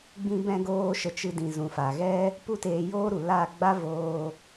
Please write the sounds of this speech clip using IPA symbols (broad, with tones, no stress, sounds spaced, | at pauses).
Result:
ɡ͡b ĩ˧ b ɛ̃˧ ɡ oː˧ ʃ ə˨ t͡ʃ ɨ˧ d ĩ˨ z ũ˨ f a˨ ɣ ɛ˦ | p u˦ t eː˧ j oː˦ ɾ u˨ l a˦˨ ɡ͡b a˦ v oː˧